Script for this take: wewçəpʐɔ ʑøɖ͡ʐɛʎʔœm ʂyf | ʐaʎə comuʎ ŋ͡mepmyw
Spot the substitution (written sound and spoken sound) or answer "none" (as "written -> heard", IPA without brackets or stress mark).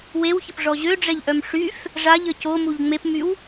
none